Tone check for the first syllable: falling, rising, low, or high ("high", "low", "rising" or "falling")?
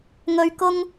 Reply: high